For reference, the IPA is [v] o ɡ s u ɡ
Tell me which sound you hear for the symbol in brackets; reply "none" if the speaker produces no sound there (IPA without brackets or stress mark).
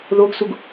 ð